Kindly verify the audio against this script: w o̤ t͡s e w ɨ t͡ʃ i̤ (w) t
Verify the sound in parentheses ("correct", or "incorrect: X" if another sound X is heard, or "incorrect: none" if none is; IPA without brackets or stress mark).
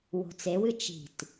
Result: incorrect: none